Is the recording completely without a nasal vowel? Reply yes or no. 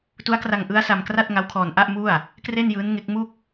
yes